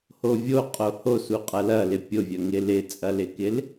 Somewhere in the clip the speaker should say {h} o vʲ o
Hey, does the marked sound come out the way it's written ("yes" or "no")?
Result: yes